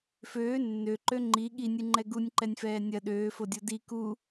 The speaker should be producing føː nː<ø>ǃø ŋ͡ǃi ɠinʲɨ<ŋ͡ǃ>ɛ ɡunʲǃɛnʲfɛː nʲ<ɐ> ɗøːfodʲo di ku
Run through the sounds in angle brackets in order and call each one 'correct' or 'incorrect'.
correct, correct, correct

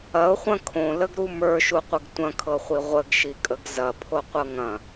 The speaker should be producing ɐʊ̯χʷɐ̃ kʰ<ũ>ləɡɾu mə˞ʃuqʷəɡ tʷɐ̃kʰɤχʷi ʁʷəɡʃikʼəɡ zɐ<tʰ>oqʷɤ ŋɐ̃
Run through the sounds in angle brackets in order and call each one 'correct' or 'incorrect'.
incorrect, incorrect

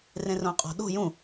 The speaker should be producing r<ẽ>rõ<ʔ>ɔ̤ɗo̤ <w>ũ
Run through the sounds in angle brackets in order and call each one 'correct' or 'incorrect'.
correct, incorrect, incorrect

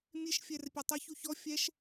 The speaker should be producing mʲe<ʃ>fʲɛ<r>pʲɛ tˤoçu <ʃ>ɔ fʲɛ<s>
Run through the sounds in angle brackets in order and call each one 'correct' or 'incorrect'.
correct, correct, incorrect, incorrect

